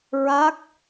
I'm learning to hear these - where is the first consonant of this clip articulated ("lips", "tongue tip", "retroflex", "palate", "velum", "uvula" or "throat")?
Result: tongue tip